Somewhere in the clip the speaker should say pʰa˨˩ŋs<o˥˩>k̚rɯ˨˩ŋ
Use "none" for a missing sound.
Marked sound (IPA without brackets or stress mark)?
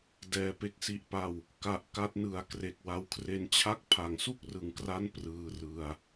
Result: u˥˩